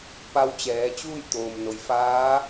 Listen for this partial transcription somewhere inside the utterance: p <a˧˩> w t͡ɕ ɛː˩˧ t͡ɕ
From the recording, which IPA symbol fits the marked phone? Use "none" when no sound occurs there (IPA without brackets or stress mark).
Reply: a˧